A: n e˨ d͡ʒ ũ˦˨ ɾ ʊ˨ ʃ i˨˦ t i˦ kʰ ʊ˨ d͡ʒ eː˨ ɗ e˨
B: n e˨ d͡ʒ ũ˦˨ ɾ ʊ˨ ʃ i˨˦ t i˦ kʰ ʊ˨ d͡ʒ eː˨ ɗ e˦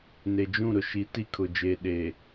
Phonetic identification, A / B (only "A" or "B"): A